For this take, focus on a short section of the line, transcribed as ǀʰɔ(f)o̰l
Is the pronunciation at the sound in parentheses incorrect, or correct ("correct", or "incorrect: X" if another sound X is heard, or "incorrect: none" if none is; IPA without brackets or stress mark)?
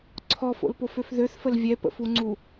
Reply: correct